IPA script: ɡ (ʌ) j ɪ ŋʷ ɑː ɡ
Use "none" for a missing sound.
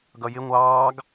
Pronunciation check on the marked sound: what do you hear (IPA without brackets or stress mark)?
ʌ